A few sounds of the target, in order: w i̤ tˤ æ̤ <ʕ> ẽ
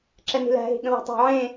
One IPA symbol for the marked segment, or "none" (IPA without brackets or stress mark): ʕ